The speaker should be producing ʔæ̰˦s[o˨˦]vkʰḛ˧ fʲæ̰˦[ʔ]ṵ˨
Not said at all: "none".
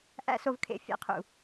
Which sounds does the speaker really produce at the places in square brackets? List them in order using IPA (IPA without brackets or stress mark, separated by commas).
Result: o˧, qʰ